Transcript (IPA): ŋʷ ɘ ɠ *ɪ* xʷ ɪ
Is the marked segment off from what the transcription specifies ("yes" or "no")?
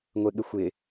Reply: no